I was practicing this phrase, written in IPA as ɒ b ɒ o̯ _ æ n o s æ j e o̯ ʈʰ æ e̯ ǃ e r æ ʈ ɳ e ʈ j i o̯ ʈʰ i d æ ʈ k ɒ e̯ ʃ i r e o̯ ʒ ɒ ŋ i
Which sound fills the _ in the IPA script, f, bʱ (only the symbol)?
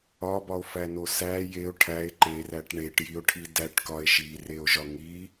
f